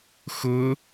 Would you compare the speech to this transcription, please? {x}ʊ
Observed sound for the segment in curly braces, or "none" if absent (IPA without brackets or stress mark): x